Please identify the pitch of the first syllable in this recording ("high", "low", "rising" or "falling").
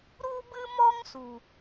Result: high